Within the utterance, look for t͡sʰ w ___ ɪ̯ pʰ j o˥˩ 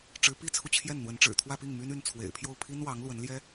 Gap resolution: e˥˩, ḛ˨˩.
ḛ˨˩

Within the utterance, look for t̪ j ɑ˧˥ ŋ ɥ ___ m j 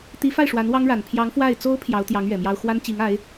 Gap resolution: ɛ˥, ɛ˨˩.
ɛ˨˩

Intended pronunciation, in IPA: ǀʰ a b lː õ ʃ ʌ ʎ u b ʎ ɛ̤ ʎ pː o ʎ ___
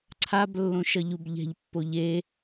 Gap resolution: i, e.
e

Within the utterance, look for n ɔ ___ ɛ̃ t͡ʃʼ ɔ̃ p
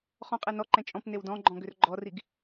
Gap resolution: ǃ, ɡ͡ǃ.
ǃ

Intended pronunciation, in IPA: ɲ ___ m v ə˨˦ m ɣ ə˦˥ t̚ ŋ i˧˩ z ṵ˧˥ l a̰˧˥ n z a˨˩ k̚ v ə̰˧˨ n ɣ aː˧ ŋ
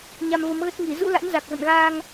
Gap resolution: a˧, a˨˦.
a˧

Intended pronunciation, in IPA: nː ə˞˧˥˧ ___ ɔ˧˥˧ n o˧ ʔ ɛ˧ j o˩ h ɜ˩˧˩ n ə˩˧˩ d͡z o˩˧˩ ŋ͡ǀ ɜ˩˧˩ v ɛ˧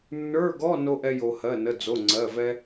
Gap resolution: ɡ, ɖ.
ɡ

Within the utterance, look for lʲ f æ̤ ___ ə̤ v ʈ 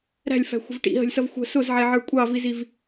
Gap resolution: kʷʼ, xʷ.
xʷ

